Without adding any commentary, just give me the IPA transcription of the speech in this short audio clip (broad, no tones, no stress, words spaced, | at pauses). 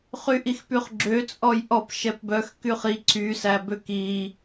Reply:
χyʔixpyχɡ͡ǁø t͡sʼɔjʔɔp ʃɛpbœx kyχi ǀy sæbøki